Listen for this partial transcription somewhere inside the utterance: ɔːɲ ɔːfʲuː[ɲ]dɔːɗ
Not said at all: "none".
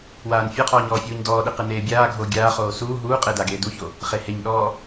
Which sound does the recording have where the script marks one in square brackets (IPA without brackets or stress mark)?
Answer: ɲ